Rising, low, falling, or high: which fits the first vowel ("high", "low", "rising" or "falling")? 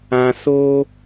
low